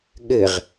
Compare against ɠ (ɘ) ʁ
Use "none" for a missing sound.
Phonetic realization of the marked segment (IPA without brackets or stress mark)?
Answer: ɘ